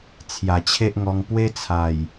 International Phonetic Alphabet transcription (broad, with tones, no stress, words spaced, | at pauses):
t͡sʰja˨˩t͡ɕʰe˦ʔŋɔ˧ŋ pwe˦t͡sʰa˨˩j